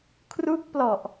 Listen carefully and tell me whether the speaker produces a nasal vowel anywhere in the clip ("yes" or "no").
no